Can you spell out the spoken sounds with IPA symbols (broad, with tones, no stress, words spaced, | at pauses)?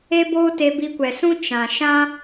e˦boː˦ te˧bi˧kʷɛ˨sũ˦ t͡ʃã˨ʃã˦